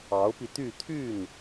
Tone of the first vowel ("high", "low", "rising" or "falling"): rising